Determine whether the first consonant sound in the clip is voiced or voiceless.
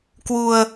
voiceless